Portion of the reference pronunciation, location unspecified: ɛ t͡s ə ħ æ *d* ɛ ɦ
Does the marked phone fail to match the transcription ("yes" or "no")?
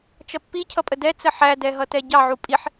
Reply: no